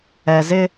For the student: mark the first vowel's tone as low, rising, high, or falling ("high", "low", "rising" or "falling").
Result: low